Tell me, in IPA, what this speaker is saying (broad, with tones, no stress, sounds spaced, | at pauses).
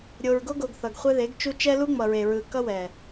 ɾʲ o˨ ɹ ɡ o˦ ɡ o˨ ɡ θ ʌ˨ ɡ χʷ ɛ˦ ð e˨˦ ɡ t͡ʃ u˦ t͡ʃ ɛ˦ l u˦ ŋ͡m ʌ˨ ɹ e˨ ɹ ɯ˨ k ʌ˦ w ɛ˨